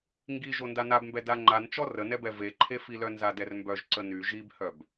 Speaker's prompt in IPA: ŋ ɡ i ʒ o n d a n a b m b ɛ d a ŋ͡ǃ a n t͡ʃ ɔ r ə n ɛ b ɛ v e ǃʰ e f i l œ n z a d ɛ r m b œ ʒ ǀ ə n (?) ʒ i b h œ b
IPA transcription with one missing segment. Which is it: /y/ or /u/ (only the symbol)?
y